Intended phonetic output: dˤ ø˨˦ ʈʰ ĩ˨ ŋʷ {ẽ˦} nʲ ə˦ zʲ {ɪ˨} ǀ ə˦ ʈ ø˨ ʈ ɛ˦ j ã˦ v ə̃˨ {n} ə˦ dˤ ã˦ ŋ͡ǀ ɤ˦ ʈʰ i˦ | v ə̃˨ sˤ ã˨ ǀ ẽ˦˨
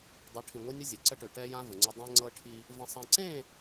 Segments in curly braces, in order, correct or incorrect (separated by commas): incorrect, incorrect, incorrect